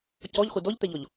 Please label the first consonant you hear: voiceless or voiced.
voiceless